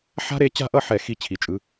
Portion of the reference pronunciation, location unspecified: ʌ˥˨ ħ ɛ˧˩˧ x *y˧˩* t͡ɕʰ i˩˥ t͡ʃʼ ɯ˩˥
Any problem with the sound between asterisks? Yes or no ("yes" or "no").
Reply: yes